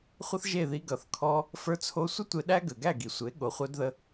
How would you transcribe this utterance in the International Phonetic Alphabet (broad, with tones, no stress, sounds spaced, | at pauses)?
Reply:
χʷ ʌ˦ θ ʒ e˦˨ ð i˧ ɡ ʌ˨ θ kʰ ɔ˧ | f ə˞˧ t͡sʰ o˧ sʷ ə˦ tʷ e˧ ɗ æ˦ ɡ ə˨ ɡ æ˦˨ ɡ i˨ sʷ e˨˦ ɠ o˨ χʷ œ˧ d ð ə˧